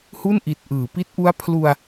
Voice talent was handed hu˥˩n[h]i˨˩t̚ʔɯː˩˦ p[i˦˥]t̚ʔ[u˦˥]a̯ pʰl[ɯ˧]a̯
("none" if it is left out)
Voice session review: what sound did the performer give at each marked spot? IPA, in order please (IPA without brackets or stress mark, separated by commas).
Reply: ʔ, i˦˥, u˦˥, u˧